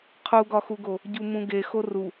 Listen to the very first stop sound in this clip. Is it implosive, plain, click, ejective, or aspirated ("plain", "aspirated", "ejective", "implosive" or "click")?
aspirated